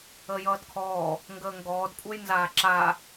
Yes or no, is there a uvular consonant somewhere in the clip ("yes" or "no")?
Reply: no